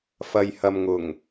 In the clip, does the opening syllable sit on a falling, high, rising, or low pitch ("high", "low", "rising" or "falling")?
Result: low